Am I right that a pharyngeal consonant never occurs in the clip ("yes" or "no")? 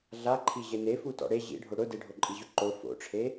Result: yes